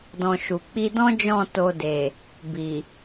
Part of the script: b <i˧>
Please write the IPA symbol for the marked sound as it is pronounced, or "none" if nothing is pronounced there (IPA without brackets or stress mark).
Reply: i˨